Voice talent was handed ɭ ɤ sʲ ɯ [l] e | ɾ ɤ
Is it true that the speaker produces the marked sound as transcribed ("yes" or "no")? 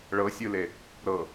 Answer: yes